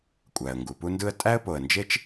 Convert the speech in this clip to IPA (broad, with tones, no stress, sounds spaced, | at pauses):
kʷʼ æ˩ ə̯ ŋ ɡ u˩ p u˦ n d ɯ˦ ə̯ tʼ æ˥ ə̯ p o˨ ə̯ n d͡ʒ e˥ t͡ʃ